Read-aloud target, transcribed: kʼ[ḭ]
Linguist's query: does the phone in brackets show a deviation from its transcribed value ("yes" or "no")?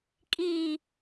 yes